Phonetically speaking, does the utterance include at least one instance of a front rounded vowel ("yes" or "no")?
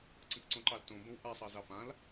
no